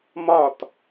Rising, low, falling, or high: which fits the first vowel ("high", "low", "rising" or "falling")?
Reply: falling